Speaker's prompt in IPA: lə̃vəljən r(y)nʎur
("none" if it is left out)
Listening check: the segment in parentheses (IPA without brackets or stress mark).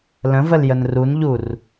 u